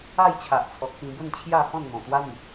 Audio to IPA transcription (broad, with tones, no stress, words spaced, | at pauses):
a˥˧jt͡ɕʰa˨ʔt͡sʰɔ˨k̚ pĩ˧bə˥˧nt͡ɕʰja˥˧ hɔ̃˥˧nn̪ɔ̃˨˩t̪wa˦n̪i˨ʔ